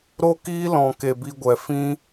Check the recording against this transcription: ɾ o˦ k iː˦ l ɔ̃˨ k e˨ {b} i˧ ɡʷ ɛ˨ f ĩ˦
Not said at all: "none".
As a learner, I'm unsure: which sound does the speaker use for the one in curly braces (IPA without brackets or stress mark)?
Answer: b